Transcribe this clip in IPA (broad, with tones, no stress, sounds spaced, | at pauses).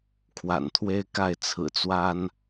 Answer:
kʰ w a̰˨˩ n t̪ʰ w e˦ ɪ̯ k a˥˨ ɪ̯ t͡sʰ ɹ̩˨˩ t͡s w a˦ n